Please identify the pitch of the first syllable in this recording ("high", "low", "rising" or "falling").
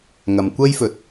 low